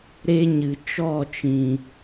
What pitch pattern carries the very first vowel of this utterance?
high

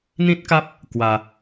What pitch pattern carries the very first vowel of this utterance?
high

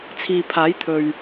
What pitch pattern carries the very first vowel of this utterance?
low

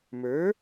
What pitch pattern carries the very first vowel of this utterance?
rising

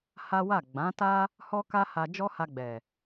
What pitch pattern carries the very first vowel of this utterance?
high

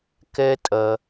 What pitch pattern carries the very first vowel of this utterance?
high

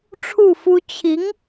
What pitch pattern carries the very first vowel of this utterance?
falling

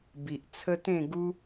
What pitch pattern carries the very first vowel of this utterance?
low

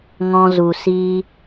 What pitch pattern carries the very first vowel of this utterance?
high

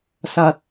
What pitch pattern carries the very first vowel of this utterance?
low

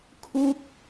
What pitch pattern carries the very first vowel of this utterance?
high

